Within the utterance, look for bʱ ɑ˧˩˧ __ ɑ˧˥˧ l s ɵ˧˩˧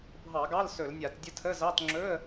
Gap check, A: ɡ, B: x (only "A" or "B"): A